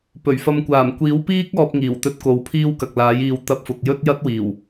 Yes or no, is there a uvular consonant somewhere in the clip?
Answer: no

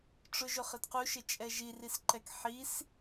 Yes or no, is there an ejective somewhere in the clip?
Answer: yes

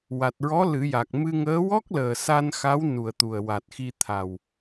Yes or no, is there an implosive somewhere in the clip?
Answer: no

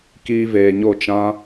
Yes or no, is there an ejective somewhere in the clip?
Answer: no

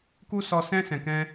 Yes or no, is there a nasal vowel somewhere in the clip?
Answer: yes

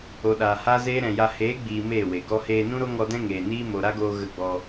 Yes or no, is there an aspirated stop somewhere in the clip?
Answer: no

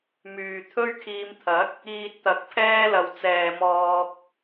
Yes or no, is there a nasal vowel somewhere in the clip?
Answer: no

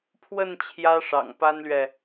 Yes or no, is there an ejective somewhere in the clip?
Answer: no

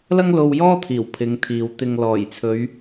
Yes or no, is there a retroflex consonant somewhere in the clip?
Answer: no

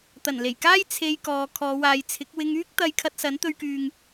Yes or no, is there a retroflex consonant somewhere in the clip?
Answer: no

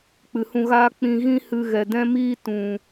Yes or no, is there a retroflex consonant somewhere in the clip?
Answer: no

